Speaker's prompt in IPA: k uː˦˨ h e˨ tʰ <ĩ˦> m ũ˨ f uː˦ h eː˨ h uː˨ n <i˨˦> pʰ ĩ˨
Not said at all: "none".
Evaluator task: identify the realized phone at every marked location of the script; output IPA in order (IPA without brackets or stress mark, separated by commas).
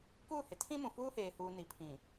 ĩ˦, i˨˦